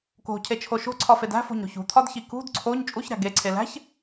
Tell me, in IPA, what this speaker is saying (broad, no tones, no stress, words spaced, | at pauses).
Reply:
ko̤cʰet͡ʃʰo ʃo̤ǀʰɒfed æ̤fo̤ɲɾo̤ç ṳt̪ʰɒdçi kṳd ǀʰoɲ t͡ʃʼuçɾæ̤ ɡeǀʰe læ̤ç